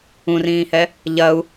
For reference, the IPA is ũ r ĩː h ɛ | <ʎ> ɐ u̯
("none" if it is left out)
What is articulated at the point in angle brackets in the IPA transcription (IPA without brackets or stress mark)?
ʎ